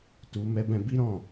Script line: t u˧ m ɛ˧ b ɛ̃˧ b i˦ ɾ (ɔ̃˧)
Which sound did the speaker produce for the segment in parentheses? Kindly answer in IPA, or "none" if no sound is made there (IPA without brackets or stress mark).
ɔ̃˦˨